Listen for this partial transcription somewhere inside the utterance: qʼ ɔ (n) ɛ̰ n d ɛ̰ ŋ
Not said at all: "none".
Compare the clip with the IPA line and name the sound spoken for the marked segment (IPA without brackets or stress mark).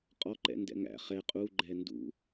ǃ